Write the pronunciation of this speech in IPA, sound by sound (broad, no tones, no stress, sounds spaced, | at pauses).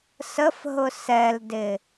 s ə f ɦ ʊ s ɛ l d ɪ